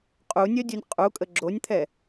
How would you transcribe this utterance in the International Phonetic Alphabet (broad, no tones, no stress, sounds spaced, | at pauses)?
qʼ u nʲ œ dʲ u nʲ qʼ u kʼ ə ɡ͡ǁ o nʲ t̪ʰ ɛ